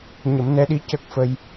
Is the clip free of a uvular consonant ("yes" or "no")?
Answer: yes